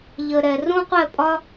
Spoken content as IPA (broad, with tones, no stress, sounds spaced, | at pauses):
ʎ ə˧ ɾ ɛ˧ r ũ˥ qʷ ɛ˥˧ pʼ ɒ˥